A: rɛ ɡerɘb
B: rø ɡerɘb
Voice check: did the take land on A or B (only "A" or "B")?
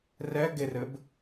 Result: A